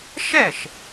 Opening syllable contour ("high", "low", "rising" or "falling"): falling